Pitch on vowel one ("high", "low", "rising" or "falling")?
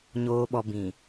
low